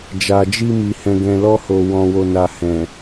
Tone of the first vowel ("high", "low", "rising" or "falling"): low